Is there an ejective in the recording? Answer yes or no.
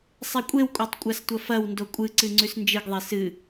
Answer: yes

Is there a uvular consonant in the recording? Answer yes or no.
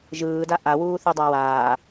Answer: no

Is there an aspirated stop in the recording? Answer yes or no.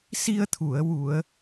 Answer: yes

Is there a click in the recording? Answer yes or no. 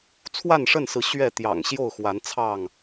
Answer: no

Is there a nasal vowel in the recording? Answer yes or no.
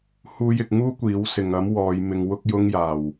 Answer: no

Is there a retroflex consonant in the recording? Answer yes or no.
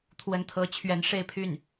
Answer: yes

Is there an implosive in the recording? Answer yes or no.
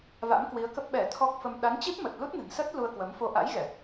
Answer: yes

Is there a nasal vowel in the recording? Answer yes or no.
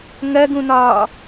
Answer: yes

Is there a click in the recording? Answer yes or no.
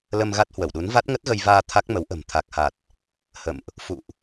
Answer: no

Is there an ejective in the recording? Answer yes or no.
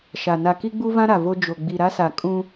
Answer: yes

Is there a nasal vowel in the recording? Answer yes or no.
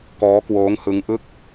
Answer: no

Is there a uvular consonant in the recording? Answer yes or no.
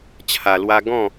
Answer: no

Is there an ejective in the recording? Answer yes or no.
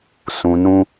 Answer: no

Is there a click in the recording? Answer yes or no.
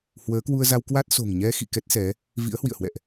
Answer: no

